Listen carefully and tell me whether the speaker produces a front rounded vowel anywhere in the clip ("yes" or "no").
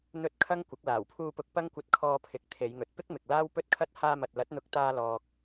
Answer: no